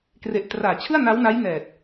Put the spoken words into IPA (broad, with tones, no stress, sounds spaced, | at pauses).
k r e˨˩ ʔ t r aː˩˦ t͡ɕʰ ɯ˥˩ a̯ n a˦˥ w n a˦˥ j n ɛː˨˩ t̚